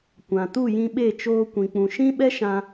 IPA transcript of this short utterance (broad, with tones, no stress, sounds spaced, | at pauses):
kʷ ã˨ t u˦˨ j ĩ˧ ɓ e˦˨ t͡ʃ oː˧ kʷ ĩ˨ k͡p ũ˨ ʃ ĩ˦ ɓ ɛ˦ ʃ ã˧